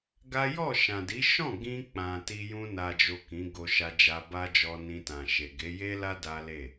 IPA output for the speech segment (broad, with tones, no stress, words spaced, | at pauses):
ɡa˦ jɔ˦˨ʃã˨di˨˦ ʃɔ̃˦˨ɡĩ˧ k͡pã˨ti˧ jũ˧na˨d͡ʒo˨ kĩ˨˦ɡo˧ʃa˧d͡ʒa˧ ba˦d͡ʒɔ˧nĩ˧tã˨ ʃe˨ɡe˨˦ je˦la˦ da˦le˦˨